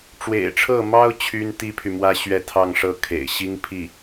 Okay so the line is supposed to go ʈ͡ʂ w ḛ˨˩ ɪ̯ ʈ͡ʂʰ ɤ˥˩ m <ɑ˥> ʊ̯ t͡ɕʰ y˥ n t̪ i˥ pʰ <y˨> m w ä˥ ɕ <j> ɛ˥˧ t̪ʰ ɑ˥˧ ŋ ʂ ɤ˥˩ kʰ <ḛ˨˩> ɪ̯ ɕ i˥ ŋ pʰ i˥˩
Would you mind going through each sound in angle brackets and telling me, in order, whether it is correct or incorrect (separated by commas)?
correct, correct, incorrect, correct